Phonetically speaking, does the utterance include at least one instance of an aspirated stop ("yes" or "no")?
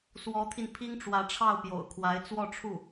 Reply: yes